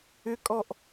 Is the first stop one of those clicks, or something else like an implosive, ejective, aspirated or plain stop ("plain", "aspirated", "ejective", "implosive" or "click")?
ejective